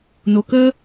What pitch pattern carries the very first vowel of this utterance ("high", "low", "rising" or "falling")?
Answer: low